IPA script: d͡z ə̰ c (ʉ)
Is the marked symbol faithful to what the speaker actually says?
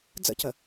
no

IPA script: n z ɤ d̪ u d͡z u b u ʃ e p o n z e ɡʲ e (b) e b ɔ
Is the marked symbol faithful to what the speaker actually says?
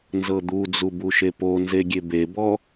yes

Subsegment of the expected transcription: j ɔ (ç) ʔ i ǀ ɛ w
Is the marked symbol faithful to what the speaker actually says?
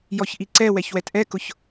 yes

